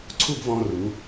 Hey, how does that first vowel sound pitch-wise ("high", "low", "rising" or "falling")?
falling